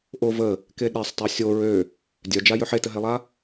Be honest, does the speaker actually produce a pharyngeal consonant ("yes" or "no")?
yes